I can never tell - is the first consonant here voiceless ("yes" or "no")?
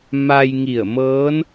no